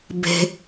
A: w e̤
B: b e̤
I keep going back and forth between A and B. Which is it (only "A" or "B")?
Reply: B